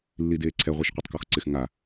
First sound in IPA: lː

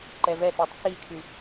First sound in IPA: ǃ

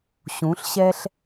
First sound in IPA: ɕ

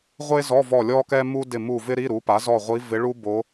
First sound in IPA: ʁʷ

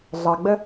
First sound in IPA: ɮ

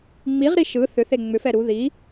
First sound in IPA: ŋ͡m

